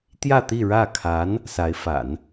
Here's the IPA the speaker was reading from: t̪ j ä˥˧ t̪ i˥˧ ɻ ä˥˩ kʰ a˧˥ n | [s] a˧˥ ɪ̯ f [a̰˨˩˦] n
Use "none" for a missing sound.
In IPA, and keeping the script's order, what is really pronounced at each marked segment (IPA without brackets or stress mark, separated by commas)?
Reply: s, a̰˨˩˦